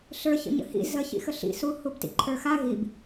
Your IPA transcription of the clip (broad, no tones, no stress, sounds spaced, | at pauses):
ɬ ə˞ ç ə̰ ɲ ə̰ h ḭ z ə ç ḭ x ə ɬ ḭ s u h u b t ḭ ǃʰ ə˞ x a ɣ i b